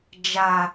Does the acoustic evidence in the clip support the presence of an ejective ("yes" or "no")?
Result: no